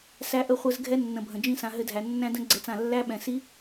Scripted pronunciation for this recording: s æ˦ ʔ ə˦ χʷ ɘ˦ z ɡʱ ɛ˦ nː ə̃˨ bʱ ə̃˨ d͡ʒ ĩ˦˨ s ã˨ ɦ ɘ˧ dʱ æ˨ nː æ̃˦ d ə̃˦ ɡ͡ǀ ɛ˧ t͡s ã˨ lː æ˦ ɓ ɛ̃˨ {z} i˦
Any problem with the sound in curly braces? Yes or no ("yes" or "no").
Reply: yes